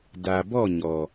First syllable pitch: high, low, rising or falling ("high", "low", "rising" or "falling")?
low